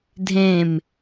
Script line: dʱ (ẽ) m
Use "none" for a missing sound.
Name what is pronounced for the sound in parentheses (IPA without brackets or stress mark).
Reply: ẽ